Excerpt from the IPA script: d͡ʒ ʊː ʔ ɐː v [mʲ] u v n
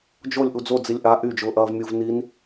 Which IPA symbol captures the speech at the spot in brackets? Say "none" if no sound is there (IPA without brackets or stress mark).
mʲ